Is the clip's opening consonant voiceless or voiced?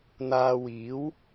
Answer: voiced